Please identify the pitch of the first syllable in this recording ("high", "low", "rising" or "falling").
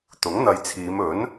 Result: rising